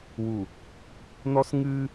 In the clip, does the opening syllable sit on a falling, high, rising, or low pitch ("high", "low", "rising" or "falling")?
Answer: low